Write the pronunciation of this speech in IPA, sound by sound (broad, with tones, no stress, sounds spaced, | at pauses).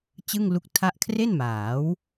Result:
t͡ɕ ɯ˥˩ ŋ l u˦˥ k̚ tʰ a˥˩ ʔ kʰ r e˥˩ n m aː˩˦ w